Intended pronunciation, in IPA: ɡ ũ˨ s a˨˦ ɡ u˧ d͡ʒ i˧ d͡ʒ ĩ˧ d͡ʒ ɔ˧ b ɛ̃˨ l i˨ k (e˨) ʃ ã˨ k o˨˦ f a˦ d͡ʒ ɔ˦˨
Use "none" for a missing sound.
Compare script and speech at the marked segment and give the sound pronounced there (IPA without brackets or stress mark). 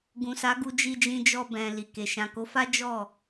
e˨